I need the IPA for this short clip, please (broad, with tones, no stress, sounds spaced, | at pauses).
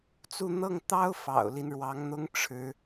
t͡s u˥˧ n̪ ɤ˥˩ ŋ t̪ ɑ˥ ʊ̯ f ɑ̰˨˩ ʊ̯ l i˦ n ɻ w ɑ˧˥ ŋ n̪ ʊ˥ ŋ ʈ͡ʂʰ ɻ̩˧˥